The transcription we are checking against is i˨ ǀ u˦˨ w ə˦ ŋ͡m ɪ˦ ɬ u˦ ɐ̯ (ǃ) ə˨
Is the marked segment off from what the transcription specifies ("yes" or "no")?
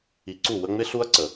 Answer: yes